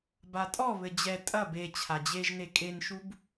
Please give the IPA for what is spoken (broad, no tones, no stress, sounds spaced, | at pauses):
b a tʼ ɔ β ɘ d͡ʑ ɛ tʼ ɐ b e t͡ɕʰ a d͡ʑ e ʒ n e kʼ e n ʃ u b